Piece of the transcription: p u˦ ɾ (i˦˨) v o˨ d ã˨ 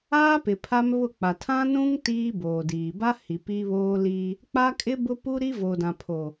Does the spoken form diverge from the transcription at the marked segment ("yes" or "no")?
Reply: yes